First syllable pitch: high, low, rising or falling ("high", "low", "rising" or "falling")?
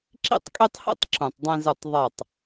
falling